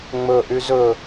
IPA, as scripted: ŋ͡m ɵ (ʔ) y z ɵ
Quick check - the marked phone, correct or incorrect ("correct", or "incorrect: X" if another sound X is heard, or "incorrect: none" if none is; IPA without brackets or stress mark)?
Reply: correct